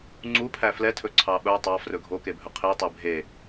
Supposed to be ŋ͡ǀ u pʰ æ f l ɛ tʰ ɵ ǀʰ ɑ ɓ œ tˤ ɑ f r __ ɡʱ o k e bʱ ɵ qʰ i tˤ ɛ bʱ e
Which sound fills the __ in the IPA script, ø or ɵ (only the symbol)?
ɵ